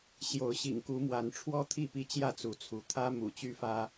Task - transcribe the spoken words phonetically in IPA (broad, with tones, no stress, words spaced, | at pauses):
ɕjo˨˦ʊ̯ɕḭ˨˩ŋ ku˨˦mwa˨˦nʈ͡ʂʰwɔ˦ t̪ʰi˥˨pi˦t͡ɕjä˥˨ t͡su˨˦t͡sʰu˨˦ t̪ʰä˦mṵ˨˩t͡ɕy˦ fä˦